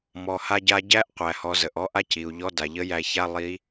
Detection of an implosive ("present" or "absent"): absent